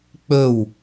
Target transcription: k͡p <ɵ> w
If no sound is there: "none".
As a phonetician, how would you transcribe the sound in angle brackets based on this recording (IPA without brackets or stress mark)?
ɵ